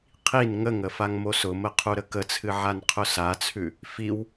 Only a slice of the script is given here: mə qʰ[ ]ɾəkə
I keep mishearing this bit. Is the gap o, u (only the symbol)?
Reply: u